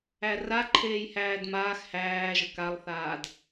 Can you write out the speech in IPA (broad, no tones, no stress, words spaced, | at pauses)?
æra ǃʰeːjhæːdmaːx hæːʒə kalˠθaːd